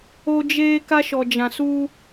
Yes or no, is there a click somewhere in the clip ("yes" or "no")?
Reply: no